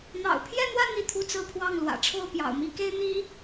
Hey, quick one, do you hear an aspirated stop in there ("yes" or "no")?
yes